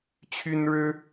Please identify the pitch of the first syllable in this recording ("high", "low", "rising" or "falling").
high